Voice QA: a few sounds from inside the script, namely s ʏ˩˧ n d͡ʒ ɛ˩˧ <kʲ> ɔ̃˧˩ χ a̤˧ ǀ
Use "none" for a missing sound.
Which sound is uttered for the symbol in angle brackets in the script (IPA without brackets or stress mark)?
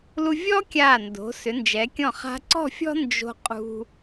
kʲ